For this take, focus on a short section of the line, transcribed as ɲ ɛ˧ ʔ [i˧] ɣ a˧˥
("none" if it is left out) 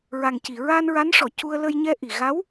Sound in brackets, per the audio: i˨˩˨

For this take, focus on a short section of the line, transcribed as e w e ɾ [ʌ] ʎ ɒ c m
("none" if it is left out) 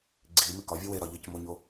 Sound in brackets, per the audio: ɒ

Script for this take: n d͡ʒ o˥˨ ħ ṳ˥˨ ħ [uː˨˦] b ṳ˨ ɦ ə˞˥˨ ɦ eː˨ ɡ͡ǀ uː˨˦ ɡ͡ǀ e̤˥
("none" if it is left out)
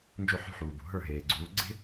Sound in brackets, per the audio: uː˨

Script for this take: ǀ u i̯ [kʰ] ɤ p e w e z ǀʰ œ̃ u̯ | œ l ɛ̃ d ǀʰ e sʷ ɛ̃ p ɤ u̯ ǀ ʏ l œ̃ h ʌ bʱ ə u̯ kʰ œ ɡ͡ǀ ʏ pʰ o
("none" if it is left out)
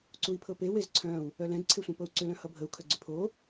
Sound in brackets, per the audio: pʰ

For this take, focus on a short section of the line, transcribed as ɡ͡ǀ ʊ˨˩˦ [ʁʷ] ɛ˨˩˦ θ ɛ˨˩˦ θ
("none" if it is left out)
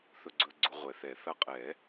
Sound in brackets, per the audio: ʁʷ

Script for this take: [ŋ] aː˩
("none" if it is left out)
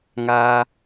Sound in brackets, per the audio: ŋ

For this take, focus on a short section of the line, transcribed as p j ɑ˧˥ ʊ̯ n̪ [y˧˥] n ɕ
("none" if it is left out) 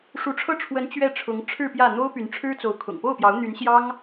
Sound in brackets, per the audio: y˧˥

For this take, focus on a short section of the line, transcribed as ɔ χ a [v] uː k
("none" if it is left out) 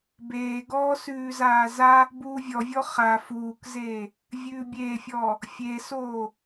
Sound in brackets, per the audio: f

